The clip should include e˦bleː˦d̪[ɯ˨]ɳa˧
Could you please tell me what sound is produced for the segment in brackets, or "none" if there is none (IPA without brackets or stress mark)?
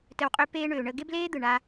ɯ˨